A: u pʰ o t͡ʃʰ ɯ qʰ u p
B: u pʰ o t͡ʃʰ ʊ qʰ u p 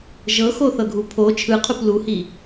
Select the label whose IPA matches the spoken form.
A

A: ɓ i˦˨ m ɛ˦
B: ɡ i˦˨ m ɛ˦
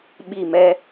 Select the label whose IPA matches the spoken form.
A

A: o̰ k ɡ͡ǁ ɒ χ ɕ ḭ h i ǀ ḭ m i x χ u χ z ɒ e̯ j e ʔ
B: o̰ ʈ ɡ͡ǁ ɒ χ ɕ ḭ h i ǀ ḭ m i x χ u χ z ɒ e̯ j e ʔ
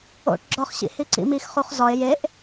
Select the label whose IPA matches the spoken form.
B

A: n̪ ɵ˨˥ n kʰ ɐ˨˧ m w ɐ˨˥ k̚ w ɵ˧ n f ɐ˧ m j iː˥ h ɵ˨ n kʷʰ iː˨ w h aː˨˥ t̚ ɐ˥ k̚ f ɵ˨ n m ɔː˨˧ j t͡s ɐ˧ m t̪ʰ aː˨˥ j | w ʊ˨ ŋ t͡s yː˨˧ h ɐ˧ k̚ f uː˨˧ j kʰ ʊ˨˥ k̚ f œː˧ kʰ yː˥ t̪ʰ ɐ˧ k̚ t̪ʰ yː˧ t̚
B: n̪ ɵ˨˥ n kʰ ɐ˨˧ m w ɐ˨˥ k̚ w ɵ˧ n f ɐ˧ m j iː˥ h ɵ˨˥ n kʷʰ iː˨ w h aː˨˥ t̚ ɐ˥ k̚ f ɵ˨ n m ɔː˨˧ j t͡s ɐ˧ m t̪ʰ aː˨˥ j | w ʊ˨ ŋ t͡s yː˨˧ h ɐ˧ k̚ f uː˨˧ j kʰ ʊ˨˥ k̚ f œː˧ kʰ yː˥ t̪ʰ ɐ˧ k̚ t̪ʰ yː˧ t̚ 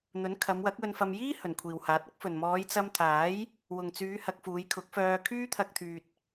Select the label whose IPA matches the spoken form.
A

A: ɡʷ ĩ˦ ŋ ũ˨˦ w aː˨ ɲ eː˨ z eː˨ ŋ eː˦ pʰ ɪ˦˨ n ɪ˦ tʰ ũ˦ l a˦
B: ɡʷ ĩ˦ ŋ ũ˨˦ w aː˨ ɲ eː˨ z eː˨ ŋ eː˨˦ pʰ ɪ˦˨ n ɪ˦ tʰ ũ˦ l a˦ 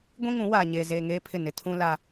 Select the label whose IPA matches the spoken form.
A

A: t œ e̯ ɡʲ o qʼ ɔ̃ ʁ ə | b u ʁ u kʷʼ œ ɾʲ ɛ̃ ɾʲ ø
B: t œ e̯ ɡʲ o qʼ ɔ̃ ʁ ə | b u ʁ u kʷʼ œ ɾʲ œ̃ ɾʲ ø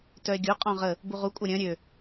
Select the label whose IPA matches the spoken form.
B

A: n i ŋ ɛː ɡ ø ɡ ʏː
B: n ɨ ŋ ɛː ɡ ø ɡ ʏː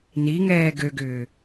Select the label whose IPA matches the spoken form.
A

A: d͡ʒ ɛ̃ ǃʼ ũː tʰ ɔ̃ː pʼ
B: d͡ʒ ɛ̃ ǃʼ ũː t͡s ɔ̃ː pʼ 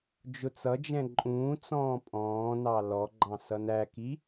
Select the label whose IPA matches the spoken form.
B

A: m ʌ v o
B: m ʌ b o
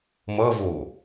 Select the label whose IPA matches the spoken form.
A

